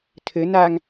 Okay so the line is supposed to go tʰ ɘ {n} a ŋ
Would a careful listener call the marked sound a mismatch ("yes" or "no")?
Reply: no